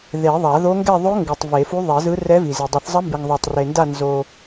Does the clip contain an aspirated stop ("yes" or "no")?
no